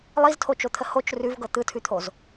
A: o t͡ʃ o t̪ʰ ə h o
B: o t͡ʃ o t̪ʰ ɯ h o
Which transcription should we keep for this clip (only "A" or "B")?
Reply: A